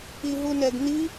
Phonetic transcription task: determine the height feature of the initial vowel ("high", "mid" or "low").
high